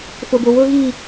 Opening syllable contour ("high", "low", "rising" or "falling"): high